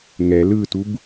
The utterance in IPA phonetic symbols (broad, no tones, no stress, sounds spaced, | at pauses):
ŋ ɛ l ɯ t u b